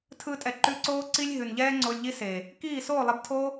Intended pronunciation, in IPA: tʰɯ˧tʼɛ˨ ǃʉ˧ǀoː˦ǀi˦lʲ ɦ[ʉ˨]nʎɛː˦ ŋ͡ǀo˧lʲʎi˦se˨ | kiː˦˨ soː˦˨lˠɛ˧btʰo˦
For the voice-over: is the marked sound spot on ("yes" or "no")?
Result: yes